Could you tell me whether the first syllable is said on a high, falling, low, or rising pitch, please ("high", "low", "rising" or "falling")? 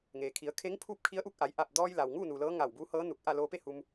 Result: low